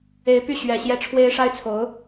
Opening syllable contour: rising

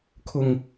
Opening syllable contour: low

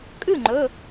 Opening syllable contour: falling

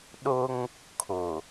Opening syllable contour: high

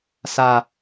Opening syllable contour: low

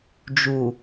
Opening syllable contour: low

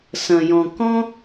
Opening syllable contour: low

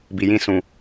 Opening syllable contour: low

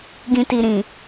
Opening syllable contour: low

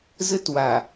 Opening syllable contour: high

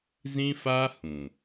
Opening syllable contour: high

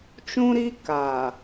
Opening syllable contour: high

